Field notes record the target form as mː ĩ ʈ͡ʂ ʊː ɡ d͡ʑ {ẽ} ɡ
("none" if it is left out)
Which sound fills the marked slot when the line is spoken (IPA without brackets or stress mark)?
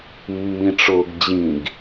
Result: ĩ